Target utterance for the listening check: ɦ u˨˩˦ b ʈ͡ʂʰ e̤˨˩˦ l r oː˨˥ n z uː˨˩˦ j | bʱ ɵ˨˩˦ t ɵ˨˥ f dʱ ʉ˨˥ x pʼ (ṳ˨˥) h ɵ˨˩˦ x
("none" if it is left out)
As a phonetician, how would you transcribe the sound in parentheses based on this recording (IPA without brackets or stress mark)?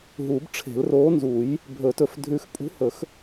ṳ˨˥